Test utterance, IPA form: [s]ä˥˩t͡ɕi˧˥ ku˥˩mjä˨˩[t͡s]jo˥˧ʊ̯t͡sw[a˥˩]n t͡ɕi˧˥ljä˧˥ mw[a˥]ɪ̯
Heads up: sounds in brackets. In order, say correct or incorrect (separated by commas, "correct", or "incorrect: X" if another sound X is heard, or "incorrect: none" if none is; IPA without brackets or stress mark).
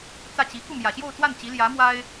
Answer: incorrect: t͡s, incorrect: ɕ, correct, correct